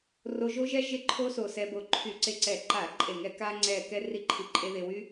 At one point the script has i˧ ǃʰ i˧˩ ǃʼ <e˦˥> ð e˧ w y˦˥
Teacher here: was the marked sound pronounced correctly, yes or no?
no